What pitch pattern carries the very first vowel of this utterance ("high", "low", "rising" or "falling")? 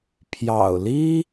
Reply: low